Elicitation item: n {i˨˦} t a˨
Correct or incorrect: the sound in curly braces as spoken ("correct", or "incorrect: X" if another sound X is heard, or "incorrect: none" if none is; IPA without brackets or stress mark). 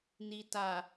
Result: incorrect: i˨